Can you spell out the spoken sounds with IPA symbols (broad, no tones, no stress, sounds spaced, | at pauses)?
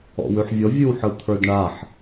ɔ̰ w ʉ ħ vʲ ɔ vʲ ɯ w ħ ɯ t̪ʰ ə˞ d ɳ a ħ